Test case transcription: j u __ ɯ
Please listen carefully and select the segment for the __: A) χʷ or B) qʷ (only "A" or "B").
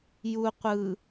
B